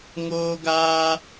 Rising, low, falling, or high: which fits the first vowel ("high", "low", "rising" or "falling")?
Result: high